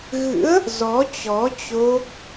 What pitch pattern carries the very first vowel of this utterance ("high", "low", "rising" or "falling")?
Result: rising